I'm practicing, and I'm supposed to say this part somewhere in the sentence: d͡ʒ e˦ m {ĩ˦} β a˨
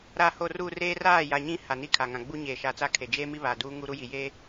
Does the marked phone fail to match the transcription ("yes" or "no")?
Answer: yes